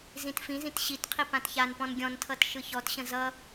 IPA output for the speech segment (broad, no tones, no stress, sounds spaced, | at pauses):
z ĩ t f ĩ z ĩ t ɕ i t qʰ i p ã t ç a n p ɔ̃ n ɡʲ ɔ̃ n tʰ ʌ t ʃ ɯ ç ɔ t ɕ ə̃ z ʌ